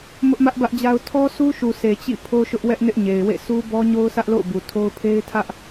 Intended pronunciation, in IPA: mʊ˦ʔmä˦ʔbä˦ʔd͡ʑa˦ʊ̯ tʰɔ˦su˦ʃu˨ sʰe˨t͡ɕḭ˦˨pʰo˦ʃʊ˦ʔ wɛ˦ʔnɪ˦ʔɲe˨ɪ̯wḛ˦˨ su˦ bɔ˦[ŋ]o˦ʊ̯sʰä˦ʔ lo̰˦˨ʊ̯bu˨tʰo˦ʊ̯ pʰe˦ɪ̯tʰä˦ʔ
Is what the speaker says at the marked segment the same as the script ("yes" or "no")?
no